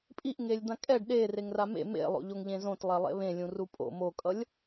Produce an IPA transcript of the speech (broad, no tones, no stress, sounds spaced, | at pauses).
pʼ i ʔ ŋ e lʲ d̪ ã kʼ ɛ ɖ ɗ e r e ŋ r a m ḛ m ḛ lˠ o̰ ʎ o ŋ ʎ ẽ z õ t lˠ ɛ lˠ ḛ β ẽ lʲ ũ r u pʼ o̰ m o kʼ ʌ lʲ